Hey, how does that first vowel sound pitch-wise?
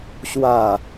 falling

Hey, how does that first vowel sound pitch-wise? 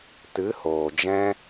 rising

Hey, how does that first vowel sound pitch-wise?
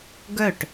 falling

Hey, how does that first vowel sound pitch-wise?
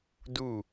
falling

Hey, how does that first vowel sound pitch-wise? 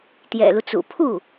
low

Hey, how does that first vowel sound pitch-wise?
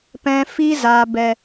low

